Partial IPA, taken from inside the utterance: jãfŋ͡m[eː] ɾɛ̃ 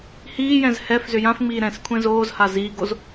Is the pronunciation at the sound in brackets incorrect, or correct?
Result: incorrect